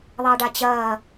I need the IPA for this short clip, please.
ðˤ ɐː ɖ a t͡ɕ ɐː

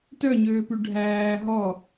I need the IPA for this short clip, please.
t œ ɲ øː p ʉ ɖʱ æː ɦ ɔ

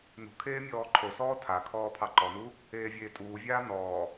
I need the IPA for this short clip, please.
n ṳ kʰ eː mʲ ɔː ǃʰ o s ɔː tʰ a kʰ ɔː pʰ ɑ ǃ ɔ n u | eː vʲ eː tʼ uː vʲ aː n ɔː

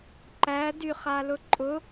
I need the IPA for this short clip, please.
ǃ æ d y χ a l ʊ ǃʼ ʊ

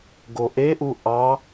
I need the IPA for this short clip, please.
ɡ o ʔ e ʔ u ʔ ɑ

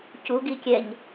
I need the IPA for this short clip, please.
c u ɡ i kʲ ɛ ɲ

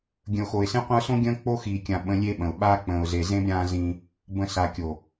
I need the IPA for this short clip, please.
ɡʲ ə̃˨ ʊ̯ x o˨ ɪ̯ s ẽ˦ qʷ ə̃˦ ʊ̯ s õ˦ ɡʲ ə̃ː˦ k͡p o˦ x iː˨ kʲ ã˨ ɓ ə̃˦ lʲ e˦ ɓ ə̃˨ ʊ̯ ɓ a˦ k͡p ə̃ː˨ ʊ̯ z e˨ z ẽ˦ b ɾʲ ãː˦ z ĩ˦ | b ə̃˨ s a˨ kʲ o˨

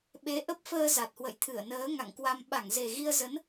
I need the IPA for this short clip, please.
ɓ e˨˦ ʔ ə˦˥ p̚ f əː˧ z a˨˩ t̚ h w ə̰˧˨ j t̪ʰ ɨ˧˩ ə̯ n əː˨˦ ŋ a̰˧˨ ŋ k w a˧ m ɓ a˧˩ ŋ z e˨˩ ɣ i˧ ə̯ z ə˨˦ n

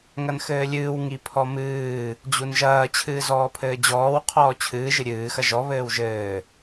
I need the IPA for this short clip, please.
ŋ ɐ n x ɘː lʲ ɨː w ŋ i pʰ ɔ m ɨː | d͡ʑ u n ʒ ɐː t͡ɕʰ ɨː z ɔː pʰ ɘː d͡ʑ ɔː w qʰ ɔː t͡ɕʰ ɨː ʒ ɨ ɾʲ ɨː x ɐ ʒ ɔ β ɘː w ʒ ɘː

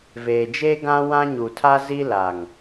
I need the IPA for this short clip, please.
v eː˨ d͡ʒ eː˦ ɡ ã˦ w ã˦ ɲ u˨ tʰ a˦ z i˦ l a˨ ŋ

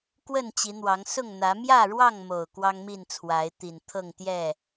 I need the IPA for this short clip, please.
k w ə˥˨ n t͡ɕ i˨˦ n̪ w ɑ˨˦ ŋ s ʊ˥˨ ŋ n̪ ä˨˦ m j ä˥˨ ɻ w ɑ˥˨ ŋ m o˨˩ ʊ̯ k w ɑ˦ ŋ m i˥˨ n t͡sʰ w a˨˦ ɪ̯ t̪ i˨˩ n t̪ʰ ɤ˥˨ ŋ t̪ j ɛ˥˨

